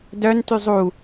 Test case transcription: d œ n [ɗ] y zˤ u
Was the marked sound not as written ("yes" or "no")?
yes